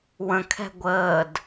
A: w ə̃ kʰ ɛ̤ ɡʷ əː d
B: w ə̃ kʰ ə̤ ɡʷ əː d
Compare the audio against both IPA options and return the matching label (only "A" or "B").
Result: A